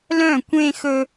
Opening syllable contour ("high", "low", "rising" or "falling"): falling